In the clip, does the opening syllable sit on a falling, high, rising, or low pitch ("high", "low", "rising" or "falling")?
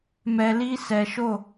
low